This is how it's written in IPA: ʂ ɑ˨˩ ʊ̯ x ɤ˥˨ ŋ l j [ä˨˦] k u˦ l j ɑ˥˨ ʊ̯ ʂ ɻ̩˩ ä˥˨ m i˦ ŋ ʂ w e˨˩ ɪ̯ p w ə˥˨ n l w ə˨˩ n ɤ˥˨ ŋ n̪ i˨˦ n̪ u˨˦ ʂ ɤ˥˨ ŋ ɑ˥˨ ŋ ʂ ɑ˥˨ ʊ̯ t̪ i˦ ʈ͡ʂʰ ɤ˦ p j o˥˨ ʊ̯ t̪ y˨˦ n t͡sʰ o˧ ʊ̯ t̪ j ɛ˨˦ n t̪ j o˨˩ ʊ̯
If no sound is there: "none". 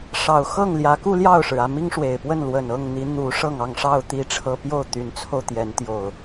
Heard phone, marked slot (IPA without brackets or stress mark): ä˨˦